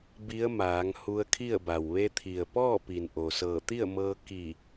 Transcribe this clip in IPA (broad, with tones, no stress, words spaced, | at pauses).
bi˧˥ə̯maː˩˧ŋ hu˧ə̯kʰi˥˨ə̯ba˩w ʋe˧t̪ʰi˩ə̯pɔː˥˨ pi˩nʔo˩sɤː˧˩ t̪i˥˨ə̯mɤː˧ ki˧˩